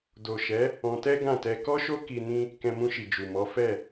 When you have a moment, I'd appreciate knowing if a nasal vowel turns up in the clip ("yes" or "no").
yes